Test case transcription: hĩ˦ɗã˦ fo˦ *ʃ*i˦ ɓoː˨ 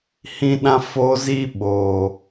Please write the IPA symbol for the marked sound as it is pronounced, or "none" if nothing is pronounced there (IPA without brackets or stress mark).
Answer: z